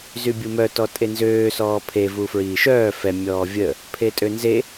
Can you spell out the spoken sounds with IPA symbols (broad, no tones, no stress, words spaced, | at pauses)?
zybʲumœ tɔtʼenzøː sɔːpʰe vufɹiːʃœː fɛ mʲɔːvʲə | pʰetʼønze